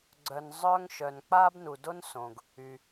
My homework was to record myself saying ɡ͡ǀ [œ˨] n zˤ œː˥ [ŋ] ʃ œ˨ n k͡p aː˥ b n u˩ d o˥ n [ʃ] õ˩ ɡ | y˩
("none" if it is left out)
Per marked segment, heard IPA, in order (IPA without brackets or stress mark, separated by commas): œ˨, ŋ, s